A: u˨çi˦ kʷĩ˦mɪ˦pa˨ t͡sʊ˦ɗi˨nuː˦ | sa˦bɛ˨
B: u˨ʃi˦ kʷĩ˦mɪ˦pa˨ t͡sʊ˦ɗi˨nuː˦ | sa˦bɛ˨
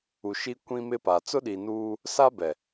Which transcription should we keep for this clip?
B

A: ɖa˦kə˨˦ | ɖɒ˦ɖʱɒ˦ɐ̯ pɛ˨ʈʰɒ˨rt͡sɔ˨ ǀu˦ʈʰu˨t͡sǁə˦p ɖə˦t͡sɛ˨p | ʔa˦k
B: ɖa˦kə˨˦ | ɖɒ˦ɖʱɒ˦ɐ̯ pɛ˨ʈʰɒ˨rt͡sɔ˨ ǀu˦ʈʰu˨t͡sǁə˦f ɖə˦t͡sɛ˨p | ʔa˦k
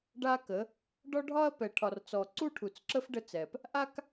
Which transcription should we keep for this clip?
B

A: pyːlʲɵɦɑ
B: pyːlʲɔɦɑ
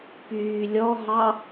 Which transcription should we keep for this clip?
B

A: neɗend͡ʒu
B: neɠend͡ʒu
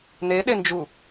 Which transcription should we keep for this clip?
A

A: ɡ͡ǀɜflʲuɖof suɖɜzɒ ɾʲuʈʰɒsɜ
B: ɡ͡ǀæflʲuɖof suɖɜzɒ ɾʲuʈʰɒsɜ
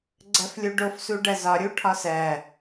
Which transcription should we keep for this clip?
A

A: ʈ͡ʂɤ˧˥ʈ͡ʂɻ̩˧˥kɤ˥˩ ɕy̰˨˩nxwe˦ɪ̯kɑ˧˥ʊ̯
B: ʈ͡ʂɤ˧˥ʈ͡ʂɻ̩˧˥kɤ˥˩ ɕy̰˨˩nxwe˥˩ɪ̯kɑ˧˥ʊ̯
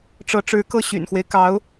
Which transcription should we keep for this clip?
A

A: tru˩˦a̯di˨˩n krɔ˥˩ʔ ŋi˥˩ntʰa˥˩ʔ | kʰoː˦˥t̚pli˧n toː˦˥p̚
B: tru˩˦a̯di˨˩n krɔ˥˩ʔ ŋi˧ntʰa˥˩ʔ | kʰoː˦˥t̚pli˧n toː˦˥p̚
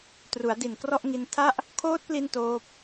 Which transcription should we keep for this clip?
B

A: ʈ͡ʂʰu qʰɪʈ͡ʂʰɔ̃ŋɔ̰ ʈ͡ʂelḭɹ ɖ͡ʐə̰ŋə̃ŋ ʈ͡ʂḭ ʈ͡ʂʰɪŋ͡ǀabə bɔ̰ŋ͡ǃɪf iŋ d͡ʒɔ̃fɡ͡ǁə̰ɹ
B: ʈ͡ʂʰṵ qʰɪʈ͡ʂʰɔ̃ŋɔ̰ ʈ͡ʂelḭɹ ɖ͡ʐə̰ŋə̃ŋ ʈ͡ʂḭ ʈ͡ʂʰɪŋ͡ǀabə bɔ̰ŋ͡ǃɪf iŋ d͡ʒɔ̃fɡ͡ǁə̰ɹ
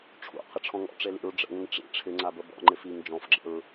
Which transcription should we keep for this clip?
B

